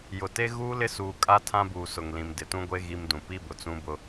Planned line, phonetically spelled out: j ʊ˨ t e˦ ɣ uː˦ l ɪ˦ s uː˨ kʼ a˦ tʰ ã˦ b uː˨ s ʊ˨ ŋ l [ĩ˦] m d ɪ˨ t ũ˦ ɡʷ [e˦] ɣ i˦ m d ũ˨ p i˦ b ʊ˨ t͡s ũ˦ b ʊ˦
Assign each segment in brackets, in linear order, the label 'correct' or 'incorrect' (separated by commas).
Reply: incorrect, correct